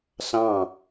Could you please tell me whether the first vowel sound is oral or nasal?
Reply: nasal